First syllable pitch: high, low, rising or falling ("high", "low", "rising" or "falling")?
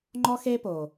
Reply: high